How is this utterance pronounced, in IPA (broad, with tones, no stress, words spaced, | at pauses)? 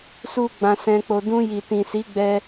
su˦ɡ͡bã˧sɛ̃˧k͡po˧ dũ˧ji˨tĩ˨ si˨˦ɡ͡bɛ˧